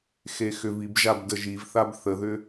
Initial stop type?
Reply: plain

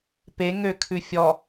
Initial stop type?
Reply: plain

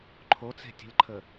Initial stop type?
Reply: click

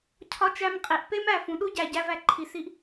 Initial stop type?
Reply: aspirated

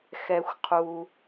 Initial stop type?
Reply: aspirated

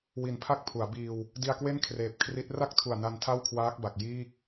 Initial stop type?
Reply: aspirated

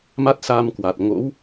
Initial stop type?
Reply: plain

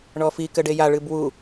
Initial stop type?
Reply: plain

